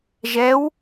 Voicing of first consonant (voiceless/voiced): voiced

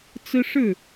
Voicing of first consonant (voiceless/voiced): voiceless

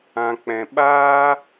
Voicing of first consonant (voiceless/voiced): voiceless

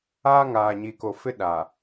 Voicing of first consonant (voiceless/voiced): voiced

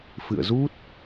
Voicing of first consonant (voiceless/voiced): voiceless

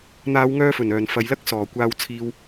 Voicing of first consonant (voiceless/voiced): voiced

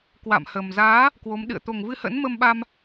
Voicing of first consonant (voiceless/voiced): voiceless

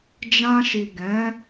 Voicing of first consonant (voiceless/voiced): voiced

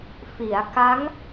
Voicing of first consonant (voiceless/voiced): voiceless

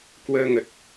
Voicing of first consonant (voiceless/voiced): voiceless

